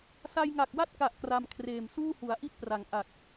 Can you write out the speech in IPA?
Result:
sa˧jŋa˨˩k̚wa˥˩t̚ka˨˩ʔ kra˧mkʰreː˨˩m suː˥˩hu˩˦a̯ʔi˥˩t̚pra˩˦ŋ ʔa˨˩k̚

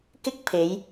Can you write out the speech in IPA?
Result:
kɪ˥k̚pʰe˨˧j

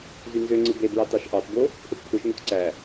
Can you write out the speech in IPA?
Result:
zynzøŋ͡ǀɯ bebɹɑ tɑʃʔɑtbo | pʰɯtpʰɯʃŋøt ǀæ

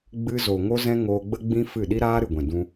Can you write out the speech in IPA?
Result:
ɡ͡bɨ˧zo˨ ŋo˦zɛ̃˦ŋoː˧ɡ͡bə˦ ɡ͡bĩ˦ fɨ˦˨ ɗi˦ɾaː˦ɾɨ˨ɡʷɛ̃˨ dũ˧

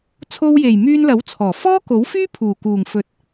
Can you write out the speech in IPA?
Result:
t͡sʰo˧wje˨˩j myː˧nlɐ˨˥wt͡sʰɔː˨˩ fɔː˥ko˨˥wfyː˥ pʰuː˨˩kuː˨˩ŋfɵ˨˥t̚

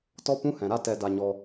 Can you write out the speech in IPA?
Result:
tɔ˦pũ˦hɛ̃˨ɾa˦ tɛ˧ da˧ɲɔ˧

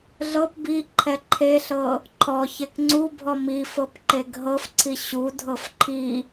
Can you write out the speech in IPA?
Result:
ɮɤp biǃʰɛ ǃʰeɬɤ | ǃʰɔ çekŋ͡ǀubʱɔ mifɤp ǃeɡɦɤfǀʰi ɕudʱɤf ǃʰi

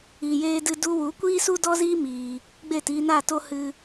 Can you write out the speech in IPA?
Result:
iː˨jeː˧dɨ˧ du˧wu˨˦ kʷiː˦su˦dɔ˦ziː˦ miː˧ | ɡ͡beː˦˨tiː˧naː˦˨to˦ hɨ˦

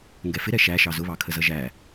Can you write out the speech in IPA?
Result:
ŋɡɛfɪɾɛ ʃæʃɑ zʊβɑkʰəzʌ ʒæ

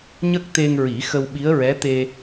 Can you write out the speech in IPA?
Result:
ɲə˦˥k̚t̪e˧ŋɹi˨˩˦ xə˧wɓi˧˥ə̯ɹɛ˧˥ t̪e˧

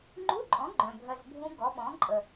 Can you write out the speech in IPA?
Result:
ŋ͡ǃu˧˥˧ǃʼɔ̃˩˥ ɡ͡ǃœ̃˨˩bʱœ˧zbʱũ˦˥ ɡɔ˩˥ɓɔ̃˩˥ ǃʼə˨˩

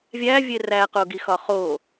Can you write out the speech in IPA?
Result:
vʲævʲe ræqoɡixɒ χo

